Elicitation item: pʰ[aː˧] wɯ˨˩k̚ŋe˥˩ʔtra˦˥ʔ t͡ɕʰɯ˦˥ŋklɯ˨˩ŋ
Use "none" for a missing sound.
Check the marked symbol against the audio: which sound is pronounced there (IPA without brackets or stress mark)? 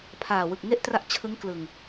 aː˨˩